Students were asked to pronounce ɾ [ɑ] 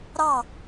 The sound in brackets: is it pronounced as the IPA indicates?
yes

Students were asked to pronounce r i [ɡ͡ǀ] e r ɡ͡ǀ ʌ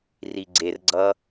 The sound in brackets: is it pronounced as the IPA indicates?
yes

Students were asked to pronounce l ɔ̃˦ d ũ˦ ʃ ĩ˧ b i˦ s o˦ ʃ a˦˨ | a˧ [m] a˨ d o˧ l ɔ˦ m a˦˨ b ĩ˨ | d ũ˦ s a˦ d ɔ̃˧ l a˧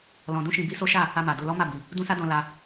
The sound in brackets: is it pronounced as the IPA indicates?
yes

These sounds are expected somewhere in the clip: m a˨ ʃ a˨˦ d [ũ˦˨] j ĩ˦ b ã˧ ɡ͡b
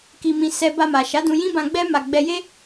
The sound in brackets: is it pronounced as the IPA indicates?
no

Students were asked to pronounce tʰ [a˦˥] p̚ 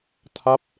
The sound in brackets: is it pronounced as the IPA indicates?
yes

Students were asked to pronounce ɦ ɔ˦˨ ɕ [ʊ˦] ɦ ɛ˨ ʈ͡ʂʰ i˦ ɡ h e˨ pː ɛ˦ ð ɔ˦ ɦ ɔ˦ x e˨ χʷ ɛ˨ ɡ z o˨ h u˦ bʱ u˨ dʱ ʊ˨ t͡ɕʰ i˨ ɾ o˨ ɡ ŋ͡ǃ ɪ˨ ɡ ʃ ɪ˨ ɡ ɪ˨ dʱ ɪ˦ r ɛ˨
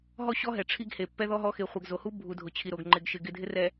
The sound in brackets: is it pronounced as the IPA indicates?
no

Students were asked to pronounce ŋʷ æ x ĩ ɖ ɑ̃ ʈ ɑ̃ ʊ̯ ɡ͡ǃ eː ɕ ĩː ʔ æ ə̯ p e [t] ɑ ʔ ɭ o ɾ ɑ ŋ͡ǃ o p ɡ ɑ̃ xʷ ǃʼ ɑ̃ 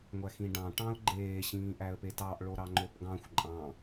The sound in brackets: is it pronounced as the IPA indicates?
yes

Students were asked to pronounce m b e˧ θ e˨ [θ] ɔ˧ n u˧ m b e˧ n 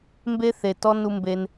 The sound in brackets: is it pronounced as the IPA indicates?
no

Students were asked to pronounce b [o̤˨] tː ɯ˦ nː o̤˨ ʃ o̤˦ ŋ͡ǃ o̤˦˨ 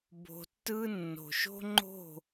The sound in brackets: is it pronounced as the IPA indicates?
yes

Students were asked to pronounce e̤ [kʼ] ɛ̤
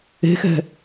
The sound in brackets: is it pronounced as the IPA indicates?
no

